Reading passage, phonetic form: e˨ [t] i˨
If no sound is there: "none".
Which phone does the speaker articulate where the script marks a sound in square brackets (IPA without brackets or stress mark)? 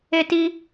t